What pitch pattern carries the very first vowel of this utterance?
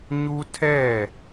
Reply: high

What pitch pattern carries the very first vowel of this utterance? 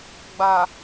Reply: low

